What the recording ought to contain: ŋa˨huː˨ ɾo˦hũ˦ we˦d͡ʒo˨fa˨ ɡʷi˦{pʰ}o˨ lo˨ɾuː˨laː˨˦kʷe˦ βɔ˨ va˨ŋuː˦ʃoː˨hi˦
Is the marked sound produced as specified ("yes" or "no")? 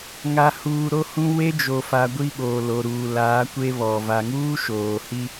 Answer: no